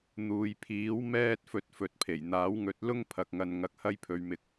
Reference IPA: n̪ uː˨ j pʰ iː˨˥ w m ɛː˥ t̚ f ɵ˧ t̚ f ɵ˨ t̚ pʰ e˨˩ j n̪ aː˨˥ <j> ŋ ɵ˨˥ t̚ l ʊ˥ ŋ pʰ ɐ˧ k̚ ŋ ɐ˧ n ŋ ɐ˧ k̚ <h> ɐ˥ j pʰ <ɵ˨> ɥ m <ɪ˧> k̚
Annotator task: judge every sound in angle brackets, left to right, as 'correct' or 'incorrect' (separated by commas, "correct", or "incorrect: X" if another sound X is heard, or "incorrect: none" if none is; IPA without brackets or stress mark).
incorrect: w, correct, incorrect: ɵ˧, correct